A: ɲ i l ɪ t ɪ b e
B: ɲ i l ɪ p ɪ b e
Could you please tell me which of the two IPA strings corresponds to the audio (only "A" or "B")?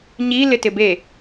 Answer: A